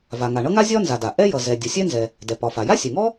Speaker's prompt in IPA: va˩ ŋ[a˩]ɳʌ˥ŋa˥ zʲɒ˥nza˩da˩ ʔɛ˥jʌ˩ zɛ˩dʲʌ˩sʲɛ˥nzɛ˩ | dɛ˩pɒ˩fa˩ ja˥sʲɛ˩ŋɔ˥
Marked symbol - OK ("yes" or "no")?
yes